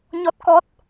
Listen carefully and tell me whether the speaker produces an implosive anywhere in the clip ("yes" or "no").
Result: no